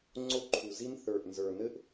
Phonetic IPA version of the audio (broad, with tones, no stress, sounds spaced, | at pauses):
ŋ͡ǀ o˦˥ ǃʰ u˨˩ z i˦˥ n θ ə˞˨˩ ʔ n z ə˞˨˩ n ɘ˦˥ ʔ